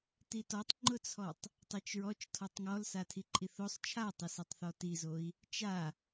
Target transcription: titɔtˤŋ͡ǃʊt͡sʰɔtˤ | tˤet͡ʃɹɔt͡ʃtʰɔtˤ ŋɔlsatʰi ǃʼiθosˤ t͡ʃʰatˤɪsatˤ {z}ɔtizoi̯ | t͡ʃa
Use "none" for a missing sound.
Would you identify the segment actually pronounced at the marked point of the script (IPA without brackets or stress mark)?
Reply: θ